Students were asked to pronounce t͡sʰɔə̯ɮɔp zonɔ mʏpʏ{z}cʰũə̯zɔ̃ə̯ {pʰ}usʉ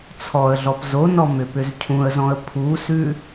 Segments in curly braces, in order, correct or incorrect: correct, correct

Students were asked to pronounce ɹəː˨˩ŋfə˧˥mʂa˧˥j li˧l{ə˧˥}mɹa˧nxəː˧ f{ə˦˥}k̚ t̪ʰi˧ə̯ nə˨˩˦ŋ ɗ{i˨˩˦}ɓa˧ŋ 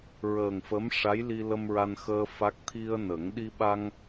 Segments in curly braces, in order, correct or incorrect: incorrect, incorrect, incorrect

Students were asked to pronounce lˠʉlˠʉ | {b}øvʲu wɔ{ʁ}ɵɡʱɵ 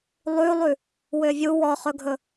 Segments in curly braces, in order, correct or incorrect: incorrect, incorrect

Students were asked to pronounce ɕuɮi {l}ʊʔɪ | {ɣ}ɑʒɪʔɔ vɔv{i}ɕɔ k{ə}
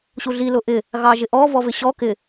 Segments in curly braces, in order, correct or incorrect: correct, correct, incorrect, incorrect

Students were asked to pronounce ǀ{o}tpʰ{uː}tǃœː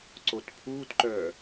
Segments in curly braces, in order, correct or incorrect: correct, correct

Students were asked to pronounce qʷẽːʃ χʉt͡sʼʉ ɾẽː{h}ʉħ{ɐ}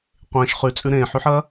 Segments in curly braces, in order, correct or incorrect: incorrect, correct

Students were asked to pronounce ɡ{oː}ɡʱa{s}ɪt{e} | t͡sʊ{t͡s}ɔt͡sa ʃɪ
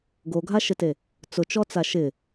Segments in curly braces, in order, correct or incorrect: incorrect, incorrect, correct, incorrect

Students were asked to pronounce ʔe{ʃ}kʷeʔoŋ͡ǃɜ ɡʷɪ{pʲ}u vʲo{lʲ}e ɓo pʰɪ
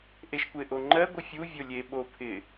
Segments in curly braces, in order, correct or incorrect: correct, incorrect, correct

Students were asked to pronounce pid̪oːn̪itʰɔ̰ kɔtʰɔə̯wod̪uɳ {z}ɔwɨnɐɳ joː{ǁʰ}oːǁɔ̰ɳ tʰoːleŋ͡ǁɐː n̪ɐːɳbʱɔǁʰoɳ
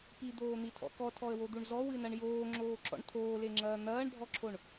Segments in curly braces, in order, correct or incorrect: correct, incorrect

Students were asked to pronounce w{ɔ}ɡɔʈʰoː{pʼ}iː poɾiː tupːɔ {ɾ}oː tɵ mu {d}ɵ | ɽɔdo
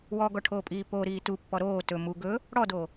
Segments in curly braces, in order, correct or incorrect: correct, correct, correct, incorrect

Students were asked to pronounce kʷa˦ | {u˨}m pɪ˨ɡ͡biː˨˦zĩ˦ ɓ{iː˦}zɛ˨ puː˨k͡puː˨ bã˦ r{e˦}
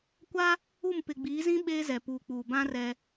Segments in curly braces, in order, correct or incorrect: incorrect, incorrect, incorrect

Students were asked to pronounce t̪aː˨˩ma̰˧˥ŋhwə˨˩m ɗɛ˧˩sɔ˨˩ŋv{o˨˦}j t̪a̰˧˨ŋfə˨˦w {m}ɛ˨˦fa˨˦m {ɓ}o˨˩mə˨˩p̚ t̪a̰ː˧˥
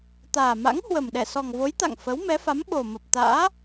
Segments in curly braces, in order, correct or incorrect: correct, correct, correct

